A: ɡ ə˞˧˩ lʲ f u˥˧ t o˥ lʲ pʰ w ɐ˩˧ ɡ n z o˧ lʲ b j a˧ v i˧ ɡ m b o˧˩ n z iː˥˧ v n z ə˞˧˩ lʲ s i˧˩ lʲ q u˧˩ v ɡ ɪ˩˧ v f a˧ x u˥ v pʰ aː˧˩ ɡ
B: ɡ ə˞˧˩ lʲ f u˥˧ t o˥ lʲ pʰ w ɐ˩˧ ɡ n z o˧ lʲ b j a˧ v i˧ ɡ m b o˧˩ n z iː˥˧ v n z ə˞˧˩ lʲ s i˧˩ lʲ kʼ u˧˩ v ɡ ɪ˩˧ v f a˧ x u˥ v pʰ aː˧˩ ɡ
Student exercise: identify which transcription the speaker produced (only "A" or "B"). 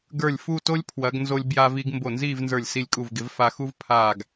B